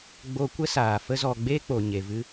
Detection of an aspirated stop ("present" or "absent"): absent